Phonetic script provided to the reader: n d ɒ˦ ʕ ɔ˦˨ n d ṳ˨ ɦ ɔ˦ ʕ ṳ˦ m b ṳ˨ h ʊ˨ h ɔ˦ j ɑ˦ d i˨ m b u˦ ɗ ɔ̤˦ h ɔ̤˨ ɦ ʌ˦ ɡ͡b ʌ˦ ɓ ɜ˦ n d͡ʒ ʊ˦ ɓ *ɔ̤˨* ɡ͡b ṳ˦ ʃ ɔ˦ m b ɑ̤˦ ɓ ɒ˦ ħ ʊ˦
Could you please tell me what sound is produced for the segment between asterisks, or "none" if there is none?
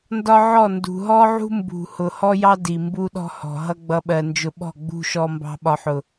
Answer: ɔ̤˦˨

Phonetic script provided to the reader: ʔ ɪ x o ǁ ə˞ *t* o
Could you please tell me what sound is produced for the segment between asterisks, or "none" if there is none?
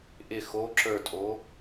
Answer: tʼ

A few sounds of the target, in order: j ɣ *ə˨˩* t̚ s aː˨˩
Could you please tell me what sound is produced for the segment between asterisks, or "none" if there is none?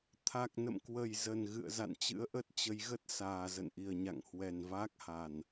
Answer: ə˦˥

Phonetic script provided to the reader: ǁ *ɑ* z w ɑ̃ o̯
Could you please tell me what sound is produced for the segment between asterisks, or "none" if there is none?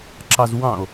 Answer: ɑ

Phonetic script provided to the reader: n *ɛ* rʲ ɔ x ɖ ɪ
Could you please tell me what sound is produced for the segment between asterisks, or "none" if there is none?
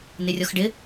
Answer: ɪ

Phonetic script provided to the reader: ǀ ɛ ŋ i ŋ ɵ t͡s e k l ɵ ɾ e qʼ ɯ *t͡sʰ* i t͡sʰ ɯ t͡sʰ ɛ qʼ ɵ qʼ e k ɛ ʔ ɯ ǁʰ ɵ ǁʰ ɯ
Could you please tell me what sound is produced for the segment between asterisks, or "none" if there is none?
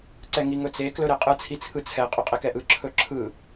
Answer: t͡sʰ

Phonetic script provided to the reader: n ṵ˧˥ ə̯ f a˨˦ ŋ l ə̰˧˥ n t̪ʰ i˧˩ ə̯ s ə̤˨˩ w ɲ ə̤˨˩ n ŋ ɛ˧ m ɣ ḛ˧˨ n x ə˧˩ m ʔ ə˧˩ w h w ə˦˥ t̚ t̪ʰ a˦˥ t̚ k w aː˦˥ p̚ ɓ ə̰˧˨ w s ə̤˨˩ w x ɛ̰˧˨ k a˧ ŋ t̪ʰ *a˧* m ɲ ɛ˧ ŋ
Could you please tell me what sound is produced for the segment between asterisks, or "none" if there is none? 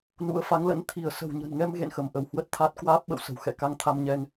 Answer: a˧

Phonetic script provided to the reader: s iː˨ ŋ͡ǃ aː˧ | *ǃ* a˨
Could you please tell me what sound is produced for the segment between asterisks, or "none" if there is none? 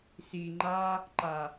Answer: ǃ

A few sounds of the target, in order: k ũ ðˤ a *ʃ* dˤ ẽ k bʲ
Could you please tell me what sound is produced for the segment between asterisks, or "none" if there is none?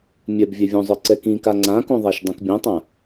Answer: ʃ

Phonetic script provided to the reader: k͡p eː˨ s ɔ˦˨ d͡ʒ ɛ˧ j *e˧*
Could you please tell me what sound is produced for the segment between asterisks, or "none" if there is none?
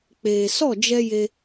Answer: e˧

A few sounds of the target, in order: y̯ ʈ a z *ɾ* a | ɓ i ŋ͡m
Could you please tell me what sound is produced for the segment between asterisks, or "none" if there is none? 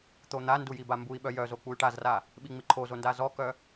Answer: r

